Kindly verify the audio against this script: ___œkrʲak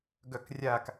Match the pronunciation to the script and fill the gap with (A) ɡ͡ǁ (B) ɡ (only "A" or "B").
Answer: B